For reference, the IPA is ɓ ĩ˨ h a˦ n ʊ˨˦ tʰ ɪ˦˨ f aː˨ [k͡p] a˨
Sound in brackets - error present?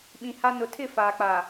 no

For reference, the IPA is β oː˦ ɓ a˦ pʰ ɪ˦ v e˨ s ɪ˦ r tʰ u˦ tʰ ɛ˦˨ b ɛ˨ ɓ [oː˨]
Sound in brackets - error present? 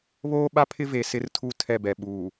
yes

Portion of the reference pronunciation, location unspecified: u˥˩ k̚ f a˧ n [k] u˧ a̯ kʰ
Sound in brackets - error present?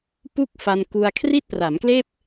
no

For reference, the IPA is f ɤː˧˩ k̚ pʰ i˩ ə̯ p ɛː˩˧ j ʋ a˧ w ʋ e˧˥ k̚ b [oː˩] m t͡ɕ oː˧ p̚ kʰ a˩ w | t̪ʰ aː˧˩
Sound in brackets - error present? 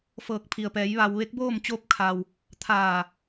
yes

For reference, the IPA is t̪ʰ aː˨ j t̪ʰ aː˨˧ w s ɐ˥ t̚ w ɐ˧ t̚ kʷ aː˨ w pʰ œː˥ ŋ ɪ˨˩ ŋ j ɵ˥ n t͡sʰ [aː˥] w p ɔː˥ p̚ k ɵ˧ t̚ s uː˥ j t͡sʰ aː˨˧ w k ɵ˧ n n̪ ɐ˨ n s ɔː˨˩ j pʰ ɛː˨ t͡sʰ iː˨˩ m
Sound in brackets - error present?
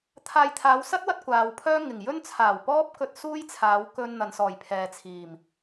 yes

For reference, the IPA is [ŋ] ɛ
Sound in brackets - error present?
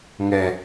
no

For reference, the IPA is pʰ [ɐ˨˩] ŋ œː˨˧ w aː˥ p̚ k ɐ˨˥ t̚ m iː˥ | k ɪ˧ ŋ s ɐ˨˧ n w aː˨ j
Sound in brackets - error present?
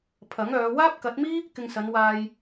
yes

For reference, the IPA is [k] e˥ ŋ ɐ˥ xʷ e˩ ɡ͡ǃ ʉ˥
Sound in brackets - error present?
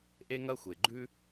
yes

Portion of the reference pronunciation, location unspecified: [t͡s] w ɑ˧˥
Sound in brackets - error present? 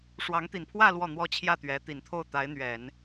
yes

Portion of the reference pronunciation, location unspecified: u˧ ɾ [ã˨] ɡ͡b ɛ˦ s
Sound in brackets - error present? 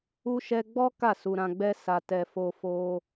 yes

